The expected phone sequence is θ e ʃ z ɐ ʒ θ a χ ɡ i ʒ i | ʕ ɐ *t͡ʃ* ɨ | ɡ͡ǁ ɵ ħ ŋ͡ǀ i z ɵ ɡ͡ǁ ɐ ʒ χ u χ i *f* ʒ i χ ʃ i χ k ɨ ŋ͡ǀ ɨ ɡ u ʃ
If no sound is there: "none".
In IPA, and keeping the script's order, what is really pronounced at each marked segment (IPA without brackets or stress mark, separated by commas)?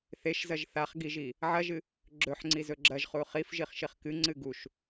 ʒ, f